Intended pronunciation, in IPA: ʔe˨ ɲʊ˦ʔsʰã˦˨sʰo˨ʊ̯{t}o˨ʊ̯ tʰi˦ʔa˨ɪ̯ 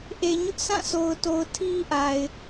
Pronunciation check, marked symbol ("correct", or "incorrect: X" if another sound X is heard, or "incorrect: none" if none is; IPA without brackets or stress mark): correct